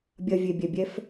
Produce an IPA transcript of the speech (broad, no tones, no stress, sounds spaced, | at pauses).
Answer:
bʲ ɐ vʲ e bʲ ɛ bʲ ɛ f